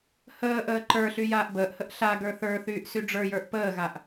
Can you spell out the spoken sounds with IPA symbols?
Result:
h əː ʔ əː ǃ ə˞ ɬ y j aː ʔ b əː ʔ h ə ʔ ɬ a ɡ ə˞ θ ə˞ θ yː ʔ s y ɖ͡ʐ ə˞ j ə˞ ʔ p əː ɣ a ʔ

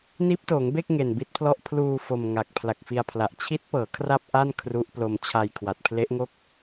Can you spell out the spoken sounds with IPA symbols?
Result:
n iː˦˥ p̚ t oː˩˦ ŋ b e˥˩ k̚ ŋ e˨˩ n b i˦˥ t̚ pʰ l ɔ˥˩ ʔ pʰ l uː˧ f o˧ m ŋ a˨˩ k̚ pʰ l a˨˩ k̚ f i˧ a̯ pʰ l a˨˩ ʔ t͡ɕʰ i˦˥ t̚ p ɤː˩˦ kʰ r a˥˩ p̚ ʔ a˥˩ n kʰ r u˦˥ ʔ p l o˧ m t͡ɕʰ a˧ j kʰ w a˨˩ t̚ pʰ l e˦˥ ʔ ŋ o˥˩ k̚

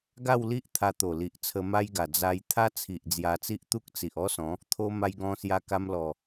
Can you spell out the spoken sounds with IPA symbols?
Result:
ɡ a˥˧ w l i˦ ʔ t̪ʰ a˧ t̪ o˨˩ l i˨ ʔ t͡sʰ ə˧ m a˦ j ɡ a˨˩ d͡z a˧ j t̪ʰ a˦ t͡sʰ i˨ ʔ d͡z j a˧ t͡s i˦ ʔ t̪ u˦ k̚ t͡s i˨ ʔ ɔ˦ s ɔ̃˨˦ | t̪ʰ o˦ m a˧ j ɡ ɔ̃˧ s j a˧ k a˧ m l ɔ˨˩

